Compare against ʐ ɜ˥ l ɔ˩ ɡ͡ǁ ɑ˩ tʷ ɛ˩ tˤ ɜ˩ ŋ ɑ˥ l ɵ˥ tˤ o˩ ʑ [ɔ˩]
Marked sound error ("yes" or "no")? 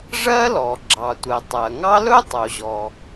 no